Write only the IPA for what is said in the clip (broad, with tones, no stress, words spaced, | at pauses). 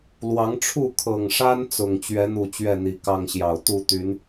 lwɑ˨˦ŋʈ͡ʂʰu˥˨ kʰɤ˨˩ŋʂa˦n t͡sʊ˨˩ŋ t͡ɕɥɛ˨˦n̪u˨˩ t͡ɕɥɛ˥˨n̪i˨˩ kɑ˥˨ŋɕjɑ˨˩ʊ̯ t̪u˥˨t̪y˨˦n